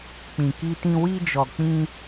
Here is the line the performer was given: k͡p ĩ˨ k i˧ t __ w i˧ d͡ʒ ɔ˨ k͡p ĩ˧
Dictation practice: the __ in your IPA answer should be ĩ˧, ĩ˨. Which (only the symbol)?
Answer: ĩ˧